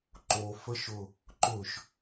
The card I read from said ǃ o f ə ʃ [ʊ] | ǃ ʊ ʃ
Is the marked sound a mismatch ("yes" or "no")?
no